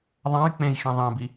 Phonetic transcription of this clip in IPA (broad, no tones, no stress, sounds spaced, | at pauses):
ðˤ ã j k͡p ẽ j x ẽ ðˤ ẽ b i